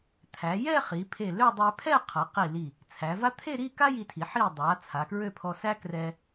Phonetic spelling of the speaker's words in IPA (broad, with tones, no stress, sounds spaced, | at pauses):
t̪ʰ æ˩˧ j ɛ˥˧ χ i˩˧ pʰ e˧˩ l ø˥˧ dˤ ɛ˧ pʰ ɛ˥˧ qʰ ʌ˩˧ q i˧˩ l i˧˩ | t͡sʰ æ˩˧ v a˥ t̪ʰ e˥˧ ɾ i˥˧ k a˥ j i˧ tʰ i˩˧ ħ i˧˩ dˤ a˩˧ t͡sʰ a˩˧ k ɹ ø˥˧ pʰ ɔ˧ s æ˥ k r ɛ˧